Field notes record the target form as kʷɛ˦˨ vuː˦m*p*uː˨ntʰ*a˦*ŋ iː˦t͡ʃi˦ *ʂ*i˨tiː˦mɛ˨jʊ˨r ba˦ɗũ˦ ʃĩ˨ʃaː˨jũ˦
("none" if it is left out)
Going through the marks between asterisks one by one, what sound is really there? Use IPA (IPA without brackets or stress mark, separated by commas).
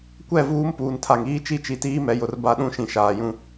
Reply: p, a˨, t͡ʃ